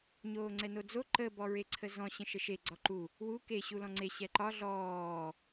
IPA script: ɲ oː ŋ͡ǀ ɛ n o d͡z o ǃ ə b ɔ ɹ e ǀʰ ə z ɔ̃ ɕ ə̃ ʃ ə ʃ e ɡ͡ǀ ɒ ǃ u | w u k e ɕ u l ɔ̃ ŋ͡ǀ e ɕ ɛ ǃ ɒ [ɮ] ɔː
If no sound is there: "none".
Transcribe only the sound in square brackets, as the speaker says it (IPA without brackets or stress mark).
ɮ